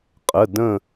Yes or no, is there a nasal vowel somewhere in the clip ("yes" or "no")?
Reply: yes